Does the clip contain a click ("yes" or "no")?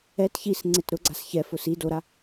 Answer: yes